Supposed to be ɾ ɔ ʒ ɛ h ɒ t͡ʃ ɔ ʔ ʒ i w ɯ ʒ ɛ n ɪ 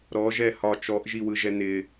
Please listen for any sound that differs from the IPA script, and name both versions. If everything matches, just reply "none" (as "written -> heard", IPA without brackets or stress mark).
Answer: none